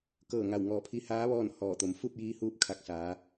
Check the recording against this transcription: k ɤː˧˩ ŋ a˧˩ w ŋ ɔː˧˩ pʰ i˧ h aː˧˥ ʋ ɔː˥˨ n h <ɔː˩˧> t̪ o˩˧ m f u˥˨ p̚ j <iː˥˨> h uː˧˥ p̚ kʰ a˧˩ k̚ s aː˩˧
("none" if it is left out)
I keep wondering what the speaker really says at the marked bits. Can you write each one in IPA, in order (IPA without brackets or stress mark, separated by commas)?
ɔː˧˩, iː˧